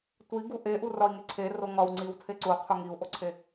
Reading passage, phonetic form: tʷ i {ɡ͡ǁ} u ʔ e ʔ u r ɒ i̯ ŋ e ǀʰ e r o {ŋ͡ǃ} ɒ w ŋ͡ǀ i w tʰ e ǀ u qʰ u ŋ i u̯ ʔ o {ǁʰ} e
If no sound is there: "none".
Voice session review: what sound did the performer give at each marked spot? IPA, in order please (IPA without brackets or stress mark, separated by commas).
ɡ, ŋ, ǀʰ